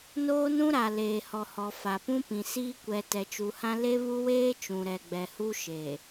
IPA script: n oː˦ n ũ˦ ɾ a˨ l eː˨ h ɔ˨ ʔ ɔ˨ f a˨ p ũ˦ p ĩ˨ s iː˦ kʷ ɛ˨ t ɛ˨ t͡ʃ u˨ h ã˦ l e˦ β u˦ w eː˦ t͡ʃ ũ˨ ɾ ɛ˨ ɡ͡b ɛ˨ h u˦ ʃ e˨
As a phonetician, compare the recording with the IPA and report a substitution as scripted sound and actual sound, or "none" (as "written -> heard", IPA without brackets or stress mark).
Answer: ʔ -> h